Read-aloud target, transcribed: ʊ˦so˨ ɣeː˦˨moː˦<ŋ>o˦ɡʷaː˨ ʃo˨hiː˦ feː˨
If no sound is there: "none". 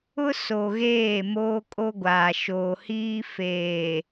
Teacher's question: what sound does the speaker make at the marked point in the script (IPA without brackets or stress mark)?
kʼ